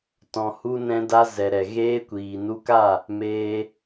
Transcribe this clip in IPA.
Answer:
tɔ̃˨hu˧ nɛ̃˧da˧zɛ˨ɾɛ˨ ɣeː˧kʷiː˨nu˧ka˦˨ | meː˧

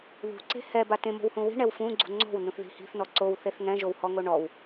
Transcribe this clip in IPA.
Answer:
ðṳǀe̤ hɛba tẽmo̤whũ wi̤ɳɛw fũɡ͡ǀṳ ŋ͡ǀo̤wnũθði̤ hi̤θnɔ ǀowθeθ ŋɛ̃ʒowhɔŋo ɳɔw

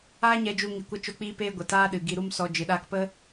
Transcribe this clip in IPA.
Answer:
aː˦ɲɛ˧d͡ʒu˧ ŋi˨kʷə˧ t͡ʃo˧k͡piː˧peː˧ ɡʷə˨taː˦ɗɨ˨ ɡi˧ɾu˦m sɔ˧ d͡ʒɨ˨ɗaː˧kpə˦

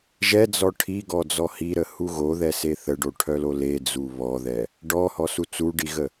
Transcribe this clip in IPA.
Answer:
ʒɛd͡zɔ ʈʰiɡɔd͡zɔ hiɾəhu ɣoðɛse θəɖoʈʰœlo led͡zu βɔðɛ | ɖɔhɔsu t͡suɖiɣə

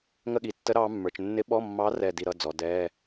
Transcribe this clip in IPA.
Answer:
ŋə˦˨ɠi˩˧tːə˧˥ ɾɑː˧˥mːə˞˩˧t͡ʃ nːɪ˧˥ɓɔ˧˥˧mːɑ˧˥ rɛ˦˨di˦˨ ɾʌ˧˥˧d͡zɔ˩˧dɛː˧˥˧

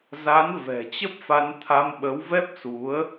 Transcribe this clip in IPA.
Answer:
za˨˦n vɛ̤˨˩t͡ɕə˦˥p̚fa˧n t̪ʰa˧mɓə˨˦w vɛ˦˥p̚su˨˦ə̯

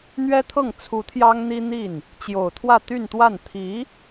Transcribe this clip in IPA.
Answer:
n̪ɥɛ˥t̪ʰɤ˥˩ŋ t͡sʰu˧˥t̪ʰjɑ˥ŋn̪i˥ n̪i˥˩n | t͡ɕjo˨˩ʊ̯t̪ʰwä˥˧ t̪y˥˧nt̪wa˥˩n t̪ʰi˧˥

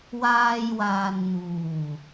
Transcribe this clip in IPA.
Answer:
waː˧jwaː˨nn̪uː˨˩

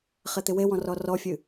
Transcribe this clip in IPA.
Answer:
χet̪ɪwewɔ̃ rɔrɔfʲɨ

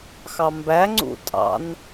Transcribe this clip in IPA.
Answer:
xɑmbæŋ͡ǀṵ tʼɑ̰n

